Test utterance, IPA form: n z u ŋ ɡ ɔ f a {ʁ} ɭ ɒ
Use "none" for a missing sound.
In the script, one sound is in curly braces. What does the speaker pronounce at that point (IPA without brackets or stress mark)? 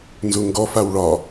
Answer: w